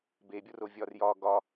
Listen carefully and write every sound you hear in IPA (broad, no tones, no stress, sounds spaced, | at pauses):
b e bʲ o r o vʲ ɒ r j ɒ ɡ ɒ